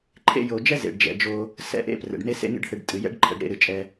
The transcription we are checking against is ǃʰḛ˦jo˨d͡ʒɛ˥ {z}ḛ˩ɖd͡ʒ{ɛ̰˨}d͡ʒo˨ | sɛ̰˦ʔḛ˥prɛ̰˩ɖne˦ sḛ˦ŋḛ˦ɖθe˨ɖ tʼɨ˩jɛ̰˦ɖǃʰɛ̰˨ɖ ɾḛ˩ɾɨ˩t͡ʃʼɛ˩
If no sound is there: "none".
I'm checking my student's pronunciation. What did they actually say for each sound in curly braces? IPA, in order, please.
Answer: z, ɛ̰˩

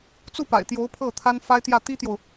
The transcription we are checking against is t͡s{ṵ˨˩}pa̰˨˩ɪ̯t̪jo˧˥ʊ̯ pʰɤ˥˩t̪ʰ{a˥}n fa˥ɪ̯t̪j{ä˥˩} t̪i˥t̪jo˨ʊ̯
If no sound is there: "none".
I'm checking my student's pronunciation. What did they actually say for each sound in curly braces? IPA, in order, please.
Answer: u˥˩, a˥, ä˥˩

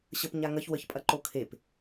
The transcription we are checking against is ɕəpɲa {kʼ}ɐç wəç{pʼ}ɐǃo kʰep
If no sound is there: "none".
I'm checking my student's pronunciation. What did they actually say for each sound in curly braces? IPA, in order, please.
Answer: ŋ, pʼ

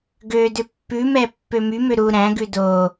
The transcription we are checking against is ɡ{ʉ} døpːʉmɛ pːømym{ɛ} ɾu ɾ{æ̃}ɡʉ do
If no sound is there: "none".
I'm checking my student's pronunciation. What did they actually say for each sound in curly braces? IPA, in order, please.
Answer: ø, ø, æ̃

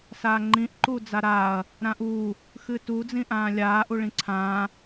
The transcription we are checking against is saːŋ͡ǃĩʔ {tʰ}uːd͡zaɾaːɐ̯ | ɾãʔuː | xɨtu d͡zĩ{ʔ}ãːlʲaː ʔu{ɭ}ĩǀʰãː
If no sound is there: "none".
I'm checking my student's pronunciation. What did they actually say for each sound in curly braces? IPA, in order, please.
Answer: ǃ, ʔ, ɭ

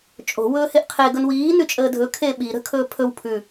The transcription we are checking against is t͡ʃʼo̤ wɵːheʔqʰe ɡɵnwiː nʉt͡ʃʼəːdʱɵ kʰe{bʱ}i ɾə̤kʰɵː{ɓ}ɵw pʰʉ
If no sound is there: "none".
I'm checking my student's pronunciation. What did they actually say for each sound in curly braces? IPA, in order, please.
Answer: ɓ, pʰ

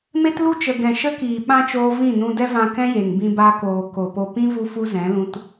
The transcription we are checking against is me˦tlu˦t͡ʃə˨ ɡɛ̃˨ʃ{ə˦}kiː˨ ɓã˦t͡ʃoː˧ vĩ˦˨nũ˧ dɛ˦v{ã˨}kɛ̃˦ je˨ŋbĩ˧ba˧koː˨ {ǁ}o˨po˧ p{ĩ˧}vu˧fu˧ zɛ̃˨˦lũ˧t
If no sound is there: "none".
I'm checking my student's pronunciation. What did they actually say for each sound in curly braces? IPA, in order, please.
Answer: ə˦, ã˧, k, ĩ˦

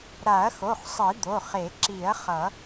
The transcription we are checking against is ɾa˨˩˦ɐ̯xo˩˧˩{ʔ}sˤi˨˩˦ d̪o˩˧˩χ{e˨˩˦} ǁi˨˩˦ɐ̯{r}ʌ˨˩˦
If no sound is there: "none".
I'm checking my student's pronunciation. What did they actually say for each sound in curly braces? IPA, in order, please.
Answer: χ, e˨˩˦, χ

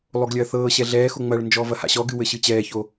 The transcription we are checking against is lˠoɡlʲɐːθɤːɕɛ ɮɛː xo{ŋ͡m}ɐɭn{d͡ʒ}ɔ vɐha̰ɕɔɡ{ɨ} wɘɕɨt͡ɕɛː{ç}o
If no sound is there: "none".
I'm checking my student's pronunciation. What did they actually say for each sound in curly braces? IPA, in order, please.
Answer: ŋ͡m, d͡ʒ, ɨ, ç

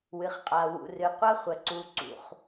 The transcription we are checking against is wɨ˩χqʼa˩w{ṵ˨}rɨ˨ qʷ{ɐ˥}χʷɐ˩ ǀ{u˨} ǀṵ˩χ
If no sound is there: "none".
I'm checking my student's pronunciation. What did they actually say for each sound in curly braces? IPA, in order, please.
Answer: ṵ˨, ɐ˥, u˨

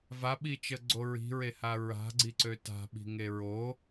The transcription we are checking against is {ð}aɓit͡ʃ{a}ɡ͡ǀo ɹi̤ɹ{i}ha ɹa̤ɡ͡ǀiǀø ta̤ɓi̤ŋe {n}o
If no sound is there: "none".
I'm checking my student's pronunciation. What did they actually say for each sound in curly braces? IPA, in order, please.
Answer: v, ə, e, ɹ

